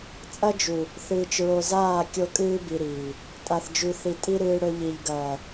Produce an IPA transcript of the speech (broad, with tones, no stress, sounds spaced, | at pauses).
t͡sʼ ɐ˦ d͡ʒ u˨ | θ ɨː˨ t͡ʃ ɹ o˨ z aː˦˨ kʲ o˦ kʼ ɨː˦ b i˨ ɾ iː˨ | tʼ a˨ θ d͡ʒ ʉ˨ θ i˨ tʼ i˦ ɾ ɨː˦ ɽ ɵ˦ ʎ i˨ ʎ ɡ ɐː˨